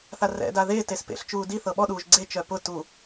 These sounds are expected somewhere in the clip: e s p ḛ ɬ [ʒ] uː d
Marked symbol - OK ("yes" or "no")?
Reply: no